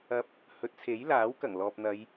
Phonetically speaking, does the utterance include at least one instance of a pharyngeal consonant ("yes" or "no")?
no